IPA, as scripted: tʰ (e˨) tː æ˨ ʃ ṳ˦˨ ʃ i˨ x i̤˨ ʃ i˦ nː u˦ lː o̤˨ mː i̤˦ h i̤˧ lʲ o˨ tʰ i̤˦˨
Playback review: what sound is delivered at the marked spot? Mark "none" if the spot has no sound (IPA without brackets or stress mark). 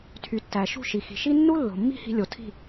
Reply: y˨